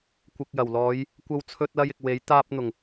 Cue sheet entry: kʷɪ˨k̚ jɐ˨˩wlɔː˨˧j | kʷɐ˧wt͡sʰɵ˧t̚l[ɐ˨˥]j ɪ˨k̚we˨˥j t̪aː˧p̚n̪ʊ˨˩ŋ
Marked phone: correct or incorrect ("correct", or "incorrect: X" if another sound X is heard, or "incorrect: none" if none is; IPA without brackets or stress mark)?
incorrect: ɐ˧